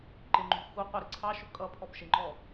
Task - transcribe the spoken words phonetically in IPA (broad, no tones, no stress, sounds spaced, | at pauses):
ǃ ɪ ŋ͡ǃ ṳ x u qʷ ɪ ɾ ɪ ǀʰ ɑ ʃ ʊ kʼ ʌ pʰ ɔ b ʃ ɪ ŋ͡ǃ ɔ